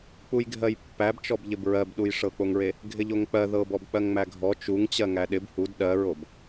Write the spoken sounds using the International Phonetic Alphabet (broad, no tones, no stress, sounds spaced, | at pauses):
k͡p u j ɡʱ ɜ j pː æ b t͡ʃ ɔ b ʎ ɪ b ɹ ɜ b ɗ u j ʂ ɤ k͡p o ŋ ɹ e | ɡʱ ɪ ʎ o ŋ k͡p ɜ ð ɤ b ɔ b k͡p ɜ ŋ ŋ͡m æ ɡʱ ɔ t͡ʃ u ŋ t͡ɕ ɜ ŋ æ ɗ ɪ b h u d ɗ ɜ ɹ o b